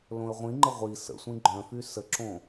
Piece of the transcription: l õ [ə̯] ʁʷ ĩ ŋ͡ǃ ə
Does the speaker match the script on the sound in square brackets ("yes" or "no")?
yes